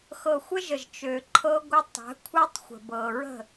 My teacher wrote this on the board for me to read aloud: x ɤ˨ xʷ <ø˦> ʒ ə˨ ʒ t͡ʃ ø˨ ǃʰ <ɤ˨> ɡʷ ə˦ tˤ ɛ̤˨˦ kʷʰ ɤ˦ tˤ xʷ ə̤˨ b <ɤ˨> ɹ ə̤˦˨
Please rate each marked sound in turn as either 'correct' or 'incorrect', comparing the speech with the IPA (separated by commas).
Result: incorrect, incorrect, correct